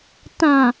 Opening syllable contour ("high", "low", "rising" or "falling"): low